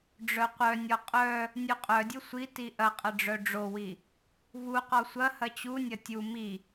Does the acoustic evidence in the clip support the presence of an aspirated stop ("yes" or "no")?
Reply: no